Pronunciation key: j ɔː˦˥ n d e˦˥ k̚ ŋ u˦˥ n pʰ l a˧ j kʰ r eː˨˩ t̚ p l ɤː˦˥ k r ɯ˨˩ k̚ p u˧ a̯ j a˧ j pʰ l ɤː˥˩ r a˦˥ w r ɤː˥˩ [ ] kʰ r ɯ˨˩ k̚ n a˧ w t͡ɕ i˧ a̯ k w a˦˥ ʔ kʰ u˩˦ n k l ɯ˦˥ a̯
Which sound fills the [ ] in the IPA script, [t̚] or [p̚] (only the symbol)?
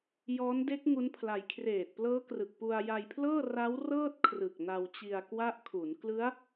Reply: t̚